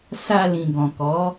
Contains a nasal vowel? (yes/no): yes